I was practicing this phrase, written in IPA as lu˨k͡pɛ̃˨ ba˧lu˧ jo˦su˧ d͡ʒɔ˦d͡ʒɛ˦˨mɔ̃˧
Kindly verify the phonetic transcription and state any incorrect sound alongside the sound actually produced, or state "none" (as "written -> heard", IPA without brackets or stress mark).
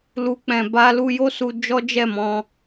none